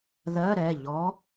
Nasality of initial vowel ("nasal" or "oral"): oral